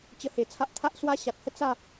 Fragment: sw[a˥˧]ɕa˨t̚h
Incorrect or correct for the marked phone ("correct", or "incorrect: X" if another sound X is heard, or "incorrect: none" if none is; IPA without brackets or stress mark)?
incorrect: a˦